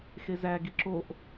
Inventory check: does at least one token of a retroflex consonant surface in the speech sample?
no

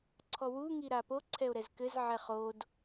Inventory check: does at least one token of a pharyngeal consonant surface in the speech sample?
yes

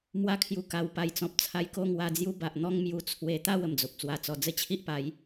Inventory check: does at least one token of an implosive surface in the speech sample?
no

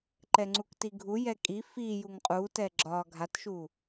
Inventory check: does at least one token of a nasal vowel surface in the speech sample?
no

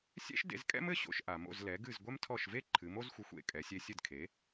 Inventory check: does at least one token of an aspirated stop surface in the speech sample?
yes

